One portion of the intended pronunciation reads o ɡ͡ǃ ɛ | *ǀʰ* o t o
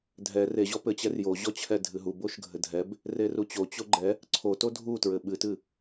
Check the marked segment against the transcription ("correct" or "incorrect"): correct